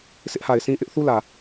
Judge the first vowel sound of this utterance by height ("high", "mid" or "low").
high